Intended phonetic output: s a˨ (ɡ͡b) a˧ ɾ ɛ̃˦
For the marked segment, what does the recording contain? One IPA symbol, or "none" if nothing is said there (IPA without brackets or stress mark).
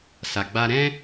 ɡ͡b